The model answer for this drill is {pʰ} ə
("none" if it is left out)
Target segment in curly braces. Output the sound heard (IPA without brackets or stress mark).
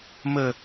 m